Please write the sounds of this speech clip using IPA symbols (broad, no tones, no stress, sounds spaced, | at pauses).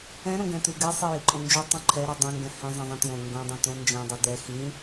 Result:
ɛ̃ ɾ õ ɡ ɛ̃ t ʉ ɡ ɛ sˤ i j i ǃʼ õ n d͡ʒ o tˤ õ ǃʰ ɛ ɾ i dˤ ɛ̃ ŋ ɡ ɛ̃ h ɛ̃ zˤ ɛ̃ zˤ ĩ t j õ ŋ ɡ õ dˤ õ t õ n d͡ʒ ɛ̃ dˤ ʉ d ɛ x ĩ